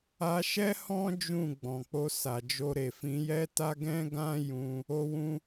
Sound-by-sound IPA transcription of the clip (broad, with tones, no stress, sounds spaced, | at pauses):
a˧ ʃ ɛ˦ h ɔ̃˦ d͡ʒ ũ˦˨ ɡ͡b ɔ̃˨ k͡p o˧ s a˨ d͡ʒ o˧ ɾ e˨ f ĩ˨˦ j ɛ˦ t a˦ ɡ ɛ̃˦ ɡ ã˦ j ũ˧ | o˧ w ũ˧